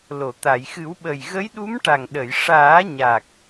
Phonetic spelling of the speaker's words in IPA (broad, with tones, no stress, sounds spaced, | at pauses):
l o˨˩˨ t̪ a˨˩˨ j x ɨ˨˩˦ w ɓ ə˨˩ j ɣ ə˧˥ j ɗ u˧˥ m ʈ a˨˩ ŋ ɗ ə˨˩˨ j ʂ aː˨˩˦ ɲ a˨˩ k̚